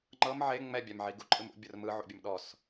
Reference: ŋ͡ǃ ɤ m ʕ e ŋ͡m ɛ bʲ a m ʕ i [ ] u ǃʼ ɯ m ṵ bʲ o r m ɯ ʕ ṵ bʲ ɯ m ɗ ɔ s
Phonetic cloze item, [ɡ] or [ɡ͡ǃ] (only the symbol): ɡ